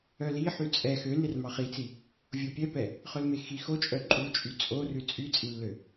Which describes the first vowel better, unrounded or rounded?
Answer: rounded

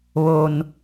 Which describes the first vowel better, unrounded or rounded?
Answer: rounded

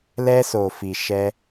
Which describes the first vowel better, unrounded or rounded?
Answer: unrounded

